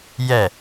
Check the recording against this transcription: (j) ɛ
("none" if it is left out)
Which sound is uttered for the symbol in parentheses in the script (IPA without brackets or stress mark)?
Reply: j